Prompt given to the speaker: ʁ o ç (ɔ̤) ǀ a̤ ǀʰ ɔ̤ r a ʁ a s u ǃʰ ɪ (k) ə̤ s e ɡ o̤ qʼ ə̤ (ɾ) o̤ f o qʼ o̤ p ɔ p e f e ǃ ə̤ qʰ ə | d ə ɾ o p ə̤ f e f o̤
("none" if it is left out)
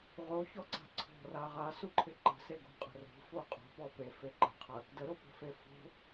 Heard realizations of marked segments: ɔ, ǃ, r

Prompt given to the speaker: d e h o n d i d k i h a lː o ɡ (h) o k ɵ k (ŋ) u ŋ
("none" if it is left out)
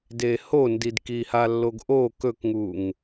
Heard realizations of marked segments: ʔ, ŋ

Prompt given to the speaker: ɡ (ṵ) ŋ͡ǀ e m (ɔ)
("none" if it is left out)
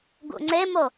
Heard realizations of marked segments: ṵ, o

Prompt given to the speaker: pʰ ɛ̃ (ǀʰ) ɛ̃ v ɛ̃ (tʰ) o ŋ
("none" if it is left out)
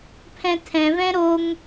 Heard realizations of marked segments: tʰ, ɾ

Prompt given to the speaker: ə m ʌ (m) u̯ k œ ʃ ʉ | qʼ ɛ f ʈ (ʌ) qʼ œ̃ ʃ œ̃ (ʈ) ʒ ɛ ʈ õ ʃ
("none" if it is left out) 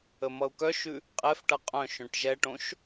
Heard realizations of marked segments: none, ʌ, ʈ

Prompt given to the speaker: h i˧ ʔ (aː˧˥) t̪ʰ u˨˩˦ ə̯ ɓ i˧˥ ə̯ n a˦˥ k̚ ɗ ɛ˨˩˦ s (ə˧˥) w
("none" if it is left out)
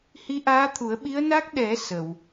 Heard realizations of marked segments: aː˧˥, ə˨˩˨

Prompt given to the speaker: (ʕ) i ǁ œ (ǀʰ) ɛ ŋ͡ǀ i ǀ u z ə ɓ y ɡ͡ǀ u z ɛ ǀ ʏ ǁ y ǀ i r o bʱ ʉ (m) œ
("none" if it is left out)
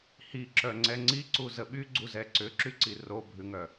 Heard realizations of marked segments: h, ŋ͡ǀ, ŋ

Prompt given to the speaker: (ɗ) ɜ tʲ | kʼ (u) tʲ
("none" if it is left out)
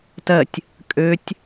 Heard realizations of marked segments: t, ø

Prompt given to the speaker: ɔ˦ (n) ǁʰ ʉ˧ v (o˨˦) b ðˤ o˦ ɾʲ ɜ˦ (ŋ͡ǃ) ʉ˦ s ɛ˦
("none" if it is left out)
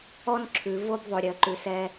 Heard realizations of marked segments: n, o˦, ǃ

